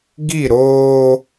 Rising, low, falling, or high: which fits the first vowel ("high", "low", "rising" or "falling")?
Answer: falling